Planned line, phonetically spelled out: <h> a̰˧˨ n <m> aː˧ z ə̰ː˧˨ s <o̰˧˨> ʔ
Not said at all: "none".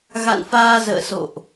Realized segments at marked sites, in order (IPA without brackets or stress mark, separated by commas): ɣ, f, o̰˧˨